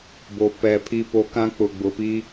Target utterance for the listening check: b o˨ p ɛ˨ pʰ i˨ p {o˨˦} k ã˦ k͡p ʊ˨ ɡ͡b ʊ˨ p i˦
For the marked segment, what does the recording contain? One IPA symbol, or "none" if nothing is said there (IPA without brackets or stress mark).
o˨˦